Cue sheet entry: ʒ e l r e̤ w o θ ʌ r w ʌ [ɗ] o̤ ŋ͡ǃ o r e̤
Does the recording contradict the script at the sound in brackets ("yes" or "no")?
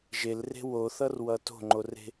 yes